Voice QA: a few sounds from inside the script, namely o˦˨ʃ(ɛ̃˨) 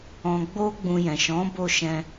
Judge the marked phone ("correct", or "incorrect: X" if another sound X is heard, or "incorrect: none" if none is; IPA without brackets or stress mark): incorrect: ɛ̃˧